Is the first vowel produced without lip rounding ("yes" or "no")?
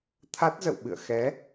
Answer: yes